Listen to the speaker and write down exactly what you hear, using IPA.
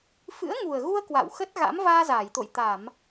f ɨ̰˧˥ ə̯ ŋ u˨˩ ə̯ ɣ u˧ ə̯ k w a̰˧˨ w x ə˦˥ t̚ ɣ a̰˧˥ m v aː˧ z aː˧˩ j t̪ o̰˧˨ j t̪ a˧˩˨ m

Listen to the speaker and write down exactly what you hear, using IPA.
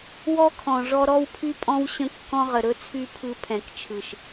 w ɔ˦ kʰ ɔ̃˨ ʐ ɔ˧ ɾ ɔ˦ w pʰ y˦ pʼ ɔ̃˦ w ɕ ə̃˦ kː ɔ̃˦ ʁ ə˨ ɾ ɵ˦ t͡sʰ y˦ pʰ ɯ˧ pʰ ɛ̃˨ k t͡ʃʰ ɯ˨ ʃ

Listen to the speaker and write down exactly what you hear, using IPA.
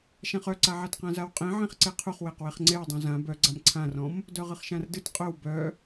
ʃ ã χ œ ǀ a ʕ a t q ã z a w qʼ ẽ ʕ ẽ χ ǀ e qʰ u χ w e q w e χ ŋ͡ǀ e w dˤ ũ z ã b œ ɡ͡ǀ a m ǀʰ ã r ɔ̃ m | d œ ʁ ɨ χ ʃ ã r d ɨ t qʼ œ w b œ

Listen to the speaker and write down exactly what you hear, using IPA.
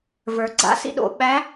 v ə˞˩ ɡ͡ǀ a̰˩˧ s ḭ˧ ɗ o̰˩ ɓ æ˧˥

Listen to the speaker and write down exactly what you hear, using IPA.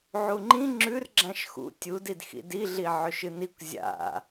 ʕ u ŋ͡ǃ ĩ ŋ͡ǁ ʉ r ɡ͡ǁ ã ʃ x ṵ tʲ u d i d x ḭ d i ɮ i ʕ ɵ ʃ ɨ n i kʷ zʲ a̰

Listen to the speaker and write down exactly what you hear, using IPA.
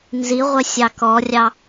n z i ʁʷ ɛ sʲ ɑ k ɔ rʲ ɑ

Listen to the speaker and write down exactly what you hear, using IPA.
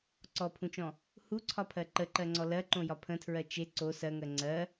ǀ ɔ pʰ ũ t͡ʃ ɔ̃ | h u ǀʰ ɒ pʰ ɜ ǃ ə ǃ ɜ ŋ͡ǀ ɔ l ɜ ǃ õ j ɒ pʰ ə̃ tʰ ɹ ɜ t͡ʃ e ǀ o s ɜ ŋ ɜ ŋ͡ǀ ɜ

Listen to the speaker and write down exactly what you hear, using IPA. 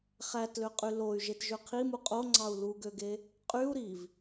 χ æ t l ø qʼ y l o y̯ ʒ e t ʒ ø qʰ i m u qʼ o ŋ͡ǀ ɑ u̯ l u ɡ ø ɡ e | qʼ y u̯ ɾ i v

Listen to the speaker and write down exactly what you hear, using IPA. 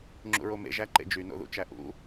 ŋ͡ǁ ṵ ɹ o m ḛ ʒ æ ǃ ḛ d͡ʒ y n o̰ ð ṵ t͡ʃ æ ʔ ṵ

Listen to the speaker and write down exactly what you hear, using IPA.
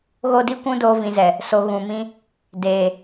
ɣ o˦ d i˦ kʷ ũ˦ d oː˦ v ĩ˧ z ɛ˨ | s o˧ ɣ ũ˨ m ĩ˧ | d eː˨

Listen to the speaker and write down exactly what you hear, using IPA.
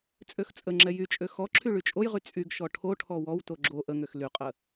t͡sʼ ø x t͡sʼ ə ŋ͡ǁ ɛ j y t͡ʃʼ ø x ɔ ǁʰ y ɭ y t͡ʃʼ o j ʁ y t͡sʼ y ɡ ʃ ɔ ʈʰ o ʈʰ ɔ w ɔ w t o ɡ͡ǁ o ʔ ə ŋ ø x l y qʼ ə

